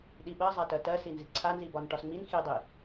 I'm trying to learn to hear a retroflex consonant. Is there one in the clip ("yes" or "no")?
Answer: yes